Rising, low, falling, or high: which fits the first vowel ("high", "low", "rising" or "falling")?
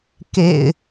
low